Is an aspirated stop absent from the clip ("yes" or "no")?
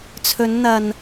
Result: no